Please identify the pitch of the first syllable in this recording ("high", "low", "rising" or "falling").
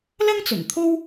high